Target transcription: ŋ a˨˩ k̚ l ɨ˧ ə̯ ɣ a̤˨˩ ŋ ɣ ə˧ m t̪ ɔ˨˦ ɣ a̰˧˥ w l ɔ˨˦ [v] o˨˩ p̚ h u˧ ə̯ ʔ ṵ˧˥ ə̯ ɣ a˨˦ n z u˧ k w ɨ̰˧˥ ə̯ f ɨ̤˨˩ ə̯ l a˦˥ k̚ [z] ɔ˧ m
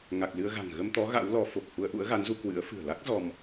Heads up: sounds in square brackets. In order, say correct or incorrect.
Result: incorrect: f, correct

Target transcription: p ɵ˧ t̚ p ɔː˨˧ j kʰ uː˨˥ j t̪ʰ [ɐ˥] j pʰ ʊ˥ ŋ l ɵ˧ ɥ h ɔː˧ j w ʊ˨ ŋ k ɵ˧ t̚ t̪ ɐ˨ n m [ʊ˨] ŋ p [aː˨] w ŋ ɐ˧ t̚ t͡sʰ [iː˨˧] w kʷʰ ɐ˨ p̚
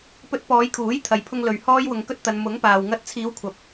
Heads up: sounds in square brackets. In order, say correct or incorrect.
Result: incorrect: ɐ˧, incorrect: ʊ˨˥, correct, correct

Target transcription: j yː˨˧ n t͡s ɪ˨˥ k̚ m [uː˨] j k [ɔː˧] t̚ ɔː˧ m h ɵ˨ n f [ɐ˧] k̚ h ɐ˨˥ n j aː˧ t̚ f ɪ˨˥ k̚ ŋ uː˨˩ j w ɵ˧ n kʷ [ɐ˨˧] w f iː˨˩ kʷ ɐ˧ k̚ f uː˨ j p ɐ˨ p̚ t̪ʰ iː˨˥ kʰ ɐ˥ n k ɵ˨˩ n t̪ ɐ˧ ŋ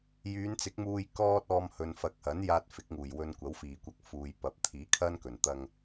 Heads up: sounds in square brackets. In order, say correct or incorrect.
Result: incorrect: uː˧, incorrect: ɔː˥, incorrect: ɐ˨, incorrect: ɐ˨˥

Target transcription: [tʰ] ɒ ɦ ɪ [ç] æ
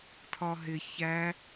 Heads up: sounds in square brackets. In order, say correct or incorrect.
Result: correct, correct

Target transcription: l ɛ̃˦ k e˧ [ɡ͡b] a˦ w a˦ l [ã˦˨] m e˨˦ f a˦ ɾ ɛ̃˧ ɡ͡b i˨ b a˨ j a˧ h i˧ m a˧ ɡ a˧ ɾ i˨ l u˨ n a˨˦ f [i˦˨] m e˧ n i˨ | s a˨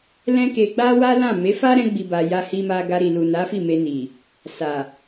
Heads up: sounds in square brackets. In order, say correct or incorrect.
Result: correct, correct, correct

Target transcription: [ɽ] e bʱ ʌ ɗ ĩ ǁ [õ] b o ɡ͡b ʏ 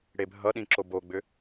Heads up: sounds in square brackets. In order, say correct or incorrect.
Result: correct, incorrect: o

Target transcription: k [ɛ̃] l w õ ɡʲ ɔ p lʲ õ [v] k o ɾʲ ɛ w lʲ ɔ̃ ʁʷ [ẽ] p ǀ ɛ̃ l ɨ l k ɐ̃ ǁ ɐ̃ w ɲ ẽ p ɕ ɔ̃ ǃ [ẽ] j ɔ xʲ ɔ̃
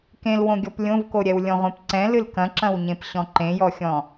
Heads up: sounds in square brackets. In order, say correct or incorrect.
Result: incorrect: ẽ, correct, correct, correct

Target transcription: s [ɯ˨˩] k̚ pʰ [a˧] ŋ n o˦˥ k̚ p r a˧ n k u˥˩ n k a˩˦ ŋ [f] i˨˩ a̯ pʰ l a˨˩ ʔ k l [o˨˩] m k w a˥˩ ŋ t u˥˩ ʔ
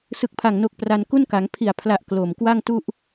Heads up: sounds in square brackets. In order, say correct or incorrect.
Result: correct, incorrect: a˨˩, incorrect: pʰ, correct

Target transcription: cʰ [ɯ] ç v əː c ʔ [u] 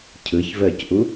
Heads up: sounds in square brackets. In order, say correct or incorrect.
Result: correct, correct

